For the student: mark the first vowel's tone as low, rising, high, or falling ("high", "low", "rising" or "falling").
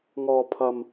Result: low